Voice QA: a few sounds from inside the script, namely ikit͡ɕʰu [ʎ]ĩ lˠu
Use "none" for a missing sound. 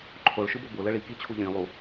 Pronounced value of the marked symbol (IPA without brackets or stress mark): ʎ